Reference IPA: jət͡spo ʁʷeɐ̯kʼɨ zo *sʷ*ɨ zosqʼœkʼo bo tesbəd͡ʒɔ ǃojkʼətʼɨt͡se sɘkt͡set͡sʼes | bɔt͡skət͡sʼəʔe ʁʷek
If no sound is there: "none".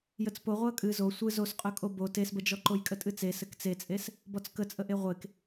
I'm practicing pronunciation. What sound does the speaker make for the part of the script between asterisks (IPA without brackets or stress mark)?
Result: sʷ